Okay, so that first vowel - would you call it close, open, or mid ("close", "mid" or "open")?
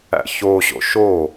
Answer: open